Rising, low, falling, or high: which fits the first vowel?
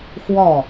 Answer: falling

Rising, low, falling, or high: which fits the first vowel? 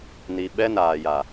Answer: low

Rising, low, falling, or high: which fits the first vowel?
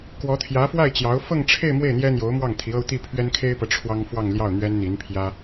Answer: rising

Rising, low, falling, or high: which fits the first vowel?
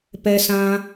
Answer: high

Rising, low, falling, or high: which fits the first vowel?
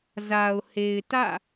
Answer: low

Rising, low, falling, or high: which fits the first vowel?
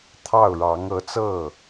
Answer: falling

